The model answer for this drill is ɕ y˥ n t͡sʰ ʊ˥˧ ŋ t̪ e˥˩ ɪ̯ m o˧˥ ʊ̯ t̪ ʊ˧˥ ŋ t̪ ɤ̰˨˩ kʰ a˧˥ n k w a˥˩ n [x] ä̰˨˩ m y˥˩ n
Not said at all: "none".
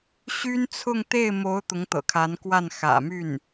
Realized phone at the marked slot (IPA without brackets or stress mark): x